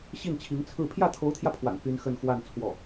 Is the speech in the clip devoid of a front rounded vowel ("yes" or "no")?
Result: no